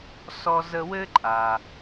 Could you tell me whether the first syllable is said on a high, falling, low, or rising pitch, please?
high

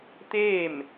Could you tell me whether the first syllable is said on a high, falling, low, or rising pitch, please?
falling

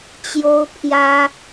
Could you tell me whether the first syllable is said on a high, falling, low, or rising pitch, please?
high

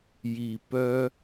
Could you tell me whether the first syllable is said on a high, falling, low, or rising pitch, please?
low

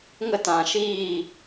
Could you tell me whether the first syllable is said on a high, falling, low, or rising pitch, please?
high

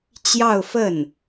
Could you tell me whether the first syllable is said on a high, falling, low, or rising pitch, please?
falling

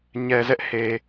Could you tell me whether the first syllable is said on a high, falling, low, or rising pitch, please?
low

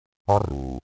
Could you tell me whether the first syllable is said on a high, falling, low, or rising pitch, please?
high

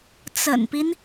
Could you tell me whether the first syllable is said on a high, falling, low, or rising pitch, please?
low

